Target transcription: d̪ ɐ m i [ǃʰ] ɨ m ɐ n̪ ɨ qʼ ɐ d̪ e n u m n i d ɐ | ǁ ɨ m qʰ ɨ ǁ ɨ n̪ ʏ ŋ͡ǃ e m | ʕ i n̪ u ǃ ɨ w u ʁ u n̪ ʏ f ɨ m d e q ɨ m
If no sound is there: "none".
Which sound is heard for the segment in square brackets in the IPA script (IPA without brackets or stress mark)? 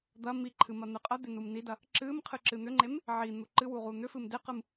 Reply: ǃʰ